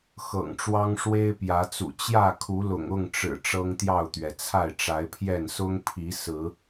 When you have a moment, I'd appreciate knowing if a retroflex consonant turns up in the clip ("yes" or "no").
yes